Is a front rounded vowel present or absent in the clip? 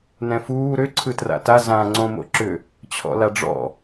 present